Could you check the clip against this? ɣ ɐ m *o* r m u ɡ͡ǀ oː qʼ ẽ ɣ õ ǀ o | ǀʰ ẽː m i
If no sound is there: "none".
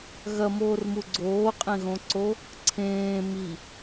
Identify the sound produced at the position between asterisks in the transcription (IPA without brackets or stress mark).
oː